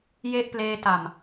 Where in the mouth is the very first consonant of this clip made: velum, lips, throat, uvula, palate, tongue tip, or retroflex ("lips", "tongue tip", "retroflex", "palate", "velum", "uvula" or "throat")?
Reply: palate